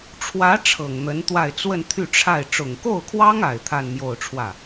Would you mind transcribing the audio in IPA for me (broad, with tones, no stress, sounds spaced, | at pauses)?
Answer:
ʈ͡ʂʰ w ä˧˥ ʈ͡ʂʰ ɤ˨˩ ŋ n̪ ə˧˥ n t̪ w a˥˧ ɪ̯ t͡s w ə˥˧ n t̪ʰ y˥˧ ʈ͡ʂʰ a˥˩ ɪ̯ ʈ͡ʂ ʊ˨˩ ŋ k o˥˩ ʊ̯ kʰ w ɑ˥ ŋ a˨˩ ɪ̯ t̪ʰ a˥˧ n m j o˥˧ ʊ̯ ʈ͡ʂʰ w ä˥˩